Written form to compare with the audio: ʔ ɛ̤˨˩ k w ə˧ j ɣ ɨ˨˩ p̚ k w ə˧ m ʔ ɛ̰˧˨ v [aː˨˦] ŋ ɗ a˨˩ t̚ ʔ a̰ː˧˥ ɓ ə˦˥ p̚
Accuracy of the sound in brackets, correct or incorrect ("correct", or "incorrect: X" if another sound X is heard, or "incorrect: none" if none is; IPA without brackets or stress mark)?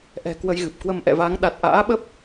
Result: correct